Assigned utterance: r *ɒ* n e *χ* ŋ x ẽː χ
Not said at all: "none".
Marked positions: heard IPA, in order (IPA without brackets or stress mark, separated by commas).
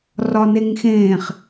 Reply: ɒ, none